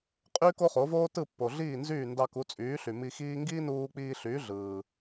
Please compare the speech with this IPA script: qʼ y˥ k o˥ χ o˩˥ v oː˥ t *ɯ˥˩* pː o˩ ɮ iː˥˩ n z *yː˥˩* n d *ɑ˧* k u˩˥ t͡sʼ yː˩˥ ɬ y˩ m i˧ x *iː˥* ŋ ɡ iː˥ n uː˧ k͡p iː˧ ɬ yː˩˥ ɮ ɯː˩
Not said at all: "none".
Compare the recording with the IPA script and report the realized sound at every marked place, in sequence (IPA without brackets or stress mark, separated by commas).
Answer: ɯ˥˩, yː˥˩, ɑ˧, iː˥